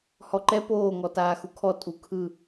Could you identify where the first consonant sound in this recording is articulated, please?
glottal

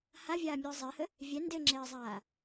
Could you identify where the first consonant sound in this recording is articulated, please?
glottal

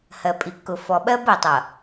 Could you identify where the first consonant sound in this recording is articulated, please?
glottal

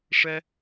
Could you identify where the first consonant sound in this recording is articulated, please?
retroflex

